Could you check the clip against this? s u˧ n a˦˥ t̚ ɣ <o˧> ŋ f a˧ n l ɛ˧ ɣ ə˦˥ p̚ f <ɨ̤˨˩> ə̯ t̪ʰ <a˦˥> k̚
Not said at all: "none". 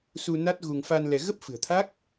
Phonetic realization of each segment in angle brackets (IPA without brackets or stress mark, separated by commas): u˧, ɨ̤˨˩, a˦˥